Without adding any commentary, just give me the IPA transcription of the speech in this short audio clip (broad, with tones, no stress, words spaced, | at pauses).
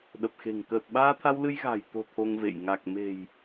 ɗə˨˩p̚xe̤˨˩ŋ kəː˨˩t̚ɓaː˧t̪ʰa˧w lɨ˧j ɣa̤˨˩jt̪o̤˨˩ t̪ʰo˧ŋvḛ˧˨j ŋa˨˩k̚me̤˨˩j